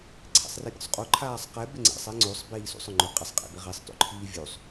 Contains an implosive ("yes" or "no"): no